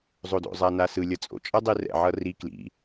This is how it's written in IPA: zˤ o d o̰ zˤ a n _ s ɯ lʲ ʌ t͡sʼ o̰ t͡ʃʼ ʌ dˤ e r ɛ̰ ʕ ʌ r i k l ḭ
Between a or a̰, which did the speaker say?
a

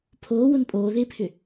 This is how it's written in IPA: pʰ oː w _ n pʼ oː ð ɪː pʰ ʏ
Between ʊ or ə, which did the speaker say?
ʊ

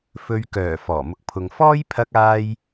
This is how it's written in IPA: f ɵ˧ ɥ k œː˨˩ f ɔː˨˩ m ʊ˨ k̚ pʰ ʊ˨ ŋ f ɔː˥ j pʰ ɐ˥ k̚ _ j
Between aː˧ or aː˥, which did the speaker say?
aː˥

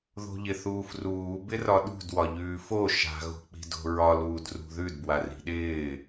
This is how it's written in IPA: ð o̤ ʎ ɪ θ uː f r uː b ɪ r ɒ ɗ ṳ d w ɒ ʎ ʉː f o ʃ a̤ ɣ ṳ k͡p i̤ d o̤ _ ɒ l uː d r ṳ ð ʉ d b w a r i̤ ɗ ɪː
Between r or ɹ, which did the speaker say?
ɹ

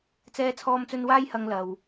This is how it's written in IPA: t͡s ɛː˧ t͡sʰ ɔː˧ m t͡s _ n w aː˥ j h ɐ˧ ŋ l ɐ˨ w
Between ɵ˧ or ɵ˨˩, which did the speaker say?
ɵ˧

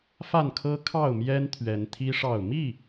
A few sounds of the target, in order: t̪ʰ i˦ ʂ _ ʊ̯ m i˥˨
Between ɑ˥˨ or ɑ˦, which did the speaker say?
ɑ˥˨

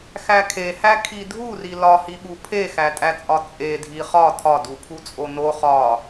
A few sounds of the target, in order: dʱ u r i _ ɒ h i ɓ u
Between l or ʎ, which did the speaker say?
l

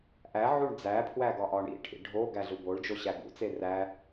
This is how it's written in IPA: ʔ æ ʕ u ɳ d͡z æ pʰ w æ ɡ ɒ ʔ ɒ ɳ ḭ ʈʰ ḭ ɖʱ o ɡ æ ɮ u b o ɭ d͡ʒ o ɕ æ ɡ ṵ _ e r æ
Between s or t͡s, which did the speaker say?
t͡s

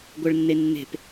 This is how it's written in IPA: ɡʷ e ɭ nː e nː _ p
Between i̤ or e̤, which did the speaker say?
e̤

